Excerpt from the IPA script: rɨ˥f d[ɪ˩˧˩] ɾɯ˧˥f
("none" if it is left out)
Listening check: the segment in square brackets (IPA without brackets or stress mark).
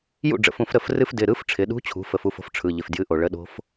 ɪ˩˧˩